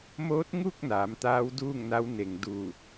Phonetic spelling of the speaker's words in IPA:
m oː˧˥ t̚ ŋ u˥˨ k̚ n aː˩˧ m t̪ aː˧˥ w d uː˥˨ ŋ n a˧˥ w n e˩ ŋ d uː˧˩

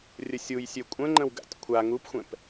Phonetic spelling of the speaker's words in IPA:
rʲ ə sʲ u j sʲ ø kʷʼ ə̃ ŋ͡ǃ ə̃ w ɡ a̰ tʲ kʷʰ a ŋ u p xʷ ɛ̃ p

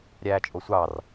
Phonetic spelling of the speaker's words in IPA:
ɾʲ æː t͡ʃʼ o sʷ ɑ r

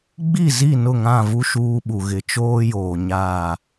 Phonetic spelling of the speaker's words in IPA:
ɡ͡b i˦˨ z i˦˨ n ʊ˦˨ ŋ ã˦˨ v u˦ ʃ uː˦ ɓ u˨ ɣ ɪ˨ t͡ʃ oː˦ j oː˨ ɲ aː˦˨

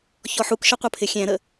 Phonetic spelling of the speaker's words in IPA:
ç ɔ ħ u k ʃ ʌ qʷ ʌ pʰ ɪ xʲ æ̃ ɾ ə

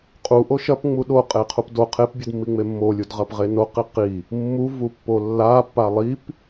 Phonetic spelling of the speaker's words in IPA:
qʼ u ʔ o ʃ ɐ p ŋ͡m u ɗ o qʼ e qʰ u p d o qʰ e p bʲ ɨ d mː i ŋ͡m e mː o lʲ u d ʁ ɐ p ʁ e n o q i q i | mː u v u pː o lː a pː a lˠ i p

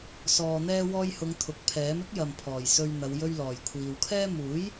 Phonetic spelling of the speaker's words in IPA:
s ɔː˨ n̪ ɛː˧ w ɔː˧ j h ʊ˨˧ ŋ t̪ʰ ʊ˨ k̚ pʰ ɛː˨˥ m ɪ˥ k̚ j ɐ˨ m pʰ ɔː˨˩ j s ɵ˧ ɥ n̪ ɐ˨˧ w j ɵ˧ ɥ l ɔː˨˩ j kʷʰ iː˨ w kʰ ɛː˥ m uː˨˥ j

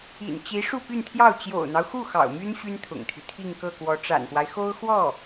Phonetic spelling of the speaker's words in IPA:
ḭ˨˩ n t͡ɕ i˧˥ ʂ u˥˧ p y˥˧ n t̪ʰ j ɑ˥˩ ʊ̯ t͡ɕ j o̰˨˩ ʊ̯ n̪ ɑ˦ ʊ̯ x u˥˩ x ɑ̰˨˩ ʊ̯ m y˥ n ɕ y˥ n t̪ʰ ʊ̰˨˩ ŋ t̪ʰ y˦ t̪ʰ i˥˧ ŋ k ɤ˥˩ k w ɔ˧˥ ʈ͡ʂ a̰˨˩ n p w a˦ ɪ̯ x o˥ ʊ̯ x w ɔ˥˩

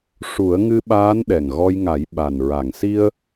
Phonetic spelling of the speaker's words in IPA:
ʂ u˨˩˦ ə̯ ŋ ɨ˧ ɓ aː˧˥ n ɗ ɛ˨˩ ŋ ɣ ɔ˧ j ŋ a˨˩˦ j ɓ a˨˩ n ɹ a˨˩˨ ŋ s i˧ ə̯

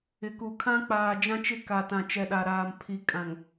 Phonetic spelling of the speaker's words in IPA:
ɪ˨ k u˨ kʰ ã˦ k͡p aː˨ d͡ʒ ã˦ t͡ʃ ɪ˦ k a˨ t ã˨ t͡ʃ ɛ˨ ɗ a˨ ɾ aː˨ m pʰ i˨ kʼ ã˨ ŋ

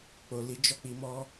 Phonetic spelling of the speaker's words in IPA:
k͡p o˨ l i˨˦ d͡ʒ ɔ˦˨ k͡p i˨˦ m ɔ˦

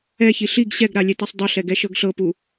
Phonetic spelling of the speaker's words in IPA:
ɛ ç i ɬ i ɡ ɕ ɛ ɡ ɾ a lʲ ɛ t a sˤ dˤ ɤ ɬ ɛ ɡ ɛ ʃ ɤ ɡ ɬ ɤ p u

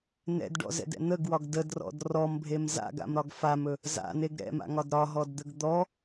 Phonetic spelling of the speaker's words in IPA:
n ɛ̰ d ɖ ɔ̰ z ɛ̰ d ɛ̰ n̪ ə ɡ w ɒ ɡ d ə d r ɔ̰ d r ɔ m bʱ e m z a̰ ɡ a̰ m ɾ ɒ ɡ f a m ɵ | z a̰ n e ɡ ɾ ɛ̰ m a̰ ŋ ɒ d ɾ ɒ ɦ ɔ d d̪ ə ɡ d̪ ɔ

